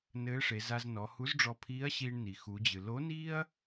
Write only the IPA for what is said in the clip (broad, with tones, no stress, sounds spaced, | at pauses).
n ɘː˧˥ ʂ e˩˧ z a˧ z n ɔ˩˧ h u˧˥ z ɖ͡ʐ ɔ˧ pʰ iː˧˥ ɐ̯ ɕ iː˧ ɳ n i˩ x u˩˧ d͡ʑ ɨ˩ l o˧˥ n iː˥ ɐ̯